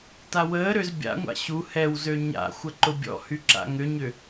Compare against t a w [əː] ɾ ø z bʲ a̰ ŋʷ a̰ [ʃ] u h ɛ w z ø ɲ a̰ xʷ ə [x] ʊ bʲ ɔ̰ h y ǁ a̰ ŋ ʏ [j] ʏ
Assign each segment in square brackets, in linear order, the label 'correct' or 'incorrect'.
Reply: correct, incorrect: ɕ, incorrect: ǃ, incorrect: ɲ

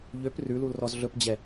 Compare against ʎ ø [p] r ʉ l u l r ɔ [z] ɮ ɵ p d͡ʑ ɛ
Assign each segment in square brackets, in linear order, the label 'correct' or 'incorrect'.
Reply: correct, correct

